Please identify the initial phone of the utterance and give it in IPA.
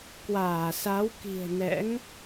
k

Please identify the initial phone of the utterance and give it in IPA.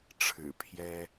ʈ͡ʂʰ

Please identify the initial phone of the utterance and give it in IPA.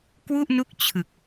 k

